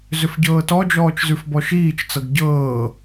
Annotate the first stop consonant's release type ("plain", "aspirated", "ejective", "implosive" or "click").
plain